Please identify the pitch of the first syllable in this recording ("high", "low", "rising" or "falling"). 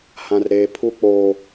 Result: high